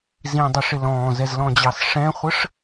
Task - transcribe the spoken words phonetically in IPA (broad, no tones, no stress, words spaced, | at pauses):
zĩdˤɪʂɪ lɔ̃ːzɛzlɔ̃d͡ʑɑs ʂɛ̃χʷəʂ